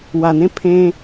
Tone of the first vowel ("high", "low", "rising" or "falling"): low